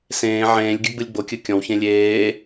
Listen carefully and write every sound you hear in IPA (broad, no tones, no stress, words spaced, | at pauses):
sẽː ʕẽːlʲɡʲɨ ɡ͡bɯlʲɡ͡bokʲɯ kʲɔ̃wçẽ lʲeː